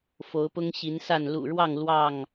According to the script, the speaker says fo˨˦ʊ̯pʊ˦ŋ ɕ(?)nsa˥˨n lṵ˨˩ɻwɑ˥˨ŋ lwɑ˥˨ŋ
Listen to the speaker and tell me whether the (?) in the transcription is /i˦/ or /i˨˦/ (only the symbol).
i˨˦